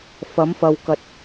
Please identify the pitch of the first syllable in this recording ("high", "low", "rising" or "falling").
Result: rising